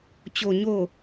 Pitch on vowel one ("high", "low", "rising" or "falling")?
low